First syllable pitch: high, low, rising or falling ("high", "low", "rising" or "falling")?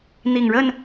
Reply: low